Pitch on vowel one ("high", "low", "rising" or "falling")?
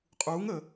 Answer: rising